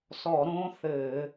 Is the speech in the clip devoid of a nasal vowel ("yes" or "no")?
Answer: no